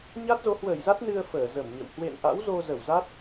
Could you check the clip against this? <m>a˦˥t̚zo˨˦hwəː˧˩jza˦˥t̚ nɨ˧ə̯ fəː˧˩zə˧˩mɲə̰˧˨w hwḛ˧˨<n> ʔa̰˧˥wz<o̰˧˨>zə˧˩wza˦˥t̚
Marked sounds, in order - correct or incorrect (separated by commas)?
incorrect, correct, incorrect